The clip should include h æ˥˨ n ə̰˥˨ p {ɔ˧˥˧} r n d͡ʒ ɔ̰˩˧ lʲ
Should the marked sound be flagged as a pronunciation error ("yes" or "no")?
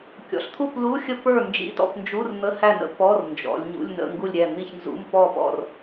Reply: no